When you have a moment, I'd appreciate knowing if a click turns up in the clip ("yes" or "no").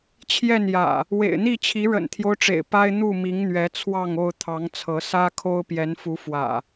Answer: no